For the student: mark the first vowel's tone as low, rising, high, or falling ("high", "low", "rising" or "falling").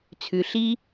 low